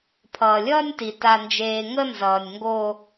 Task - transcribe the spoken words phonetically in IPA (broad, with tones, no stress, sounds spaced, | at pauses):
pʰ ʌː˨ lʲ ʌː˦ nʲ t i˨ t a˨ n d͡ʒ eː˨ ŋ ə˦ n z ʌː˨ nʲ ŋ ɡ o˦